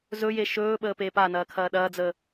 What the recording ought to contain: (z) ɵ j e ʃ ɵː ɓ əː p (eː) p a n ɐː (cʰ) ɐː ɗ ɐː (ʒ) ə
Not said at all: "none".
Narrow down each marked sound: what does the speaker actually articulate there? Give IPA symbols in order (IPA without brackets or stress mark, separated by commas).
z, eː, kʰ, d͡z